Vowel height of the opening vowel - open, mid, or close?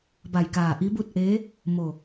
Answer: open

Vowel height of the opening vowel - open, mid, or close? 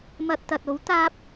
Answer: open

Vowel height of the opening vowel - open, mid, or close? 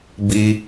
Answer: close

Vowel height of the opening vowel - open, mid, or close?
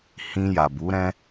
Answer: close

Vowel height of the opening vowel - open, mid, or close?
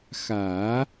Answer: open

